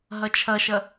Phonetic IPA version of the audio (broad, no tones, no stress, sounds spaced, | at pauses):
ɦ ɐ t͡ʃʰ ɐ ʃ ɐ